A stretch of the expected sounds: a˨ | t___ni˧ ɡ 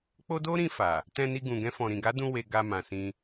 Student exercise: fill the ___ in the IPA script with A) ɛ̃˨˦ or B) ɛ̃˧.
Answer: B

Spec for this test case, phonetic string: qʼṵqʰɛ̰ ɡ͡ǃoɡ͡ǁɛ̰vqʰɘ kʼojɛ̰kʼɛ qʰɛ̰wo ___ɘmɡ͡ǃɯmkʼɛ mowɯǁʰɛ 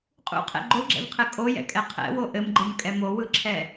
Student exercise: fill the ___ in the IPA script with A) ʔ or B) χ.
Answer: A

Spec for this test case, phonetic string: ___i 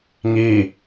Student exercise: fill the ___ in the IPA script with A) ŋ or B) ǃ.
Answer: A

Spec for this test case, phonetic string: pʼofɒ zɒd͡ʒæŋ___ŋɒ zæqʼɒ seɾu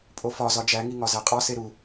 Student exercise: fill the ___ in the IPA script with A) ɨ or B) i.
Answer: B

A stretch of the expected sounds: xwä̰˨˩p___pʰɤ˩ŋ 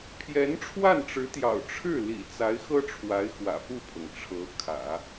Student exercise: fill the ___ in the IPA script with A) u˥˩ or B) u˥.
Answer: A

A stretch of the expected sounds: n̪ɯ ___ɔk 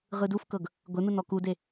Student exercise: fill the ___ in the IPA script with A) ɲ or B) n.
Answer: B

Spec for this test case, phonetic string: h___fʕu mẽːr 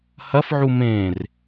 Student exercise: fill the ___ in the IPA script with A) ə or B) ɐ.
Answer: B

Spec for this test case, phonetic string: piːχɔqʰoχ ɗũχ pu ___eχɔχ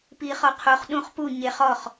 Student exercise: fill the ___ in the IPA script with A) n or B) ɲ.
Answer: B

